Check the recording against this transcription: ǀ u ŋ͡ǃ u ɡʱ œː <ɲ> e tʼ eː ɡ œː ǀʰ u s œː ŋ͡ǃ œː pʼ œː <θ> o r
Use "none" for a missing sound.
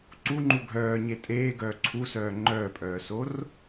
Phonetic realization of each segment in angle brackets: ɲ, s

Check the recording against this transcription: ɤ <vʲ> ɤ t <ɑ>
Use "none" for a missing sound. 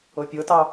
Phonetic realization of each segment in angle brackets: pʲ, ɑ

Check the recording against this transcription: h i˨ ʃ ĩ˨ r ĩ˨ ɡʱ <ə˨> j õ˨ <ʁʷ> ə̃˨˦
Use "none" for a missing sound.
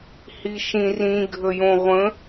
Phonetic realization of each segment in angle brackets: ə˨, ʁʷ

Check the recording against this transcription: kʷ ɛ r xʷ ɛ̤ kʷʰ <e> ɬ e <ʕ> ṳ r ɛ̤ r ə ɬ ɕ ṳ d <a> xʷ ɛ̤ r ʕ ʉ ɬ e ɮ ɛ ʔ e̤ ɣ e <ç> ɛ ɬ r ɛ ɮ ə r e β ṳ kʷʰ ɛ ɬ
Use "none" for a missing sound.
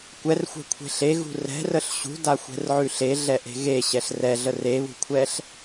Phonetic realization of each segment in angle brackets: e̤, ɣ, a, ɕ

